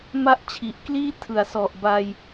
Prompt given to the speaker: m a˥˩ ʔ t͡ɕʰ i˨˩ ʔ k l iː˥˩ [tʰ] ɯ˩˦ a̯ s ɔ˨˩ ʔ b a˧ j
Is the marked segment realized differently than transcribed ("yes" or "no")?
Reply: no